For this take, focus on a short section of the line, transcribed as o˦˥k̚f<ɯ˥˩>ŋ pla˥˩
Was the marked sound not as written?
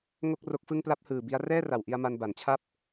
no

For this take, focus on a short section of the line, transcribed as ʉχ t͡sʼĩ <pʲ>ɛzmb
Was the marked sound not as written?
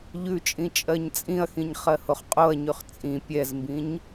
no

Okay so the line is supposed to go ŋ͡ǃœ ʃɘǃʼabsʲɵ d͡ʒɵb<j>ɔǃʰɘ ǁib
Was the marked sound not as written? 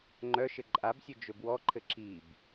yes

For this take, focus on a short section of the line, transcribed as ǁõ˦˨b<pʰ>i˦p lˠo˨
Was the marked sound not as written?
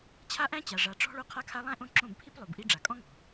no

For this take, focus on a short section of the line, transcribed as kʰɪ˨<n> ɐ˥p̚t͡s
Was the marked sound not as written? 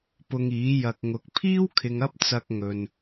yes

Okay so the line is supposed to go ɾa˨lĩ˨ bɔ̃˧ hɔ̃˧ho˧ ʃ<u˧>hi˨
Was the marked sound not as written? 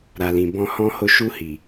no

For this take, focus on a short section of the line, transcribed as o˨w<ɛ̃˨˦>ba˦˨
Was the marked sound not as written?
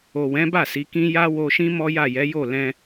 no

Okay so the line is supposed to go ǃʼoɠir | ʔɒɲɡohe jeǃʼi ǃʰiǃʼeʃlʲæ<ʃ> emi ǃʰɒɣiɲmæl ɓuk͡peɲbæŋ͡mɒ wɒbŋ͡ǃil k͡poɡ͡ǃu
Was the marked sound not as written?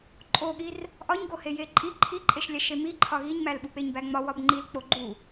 no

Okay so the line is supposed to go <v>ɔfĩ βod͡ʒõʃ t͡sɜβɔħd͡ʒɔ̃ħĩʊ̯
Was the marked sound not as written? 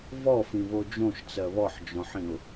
no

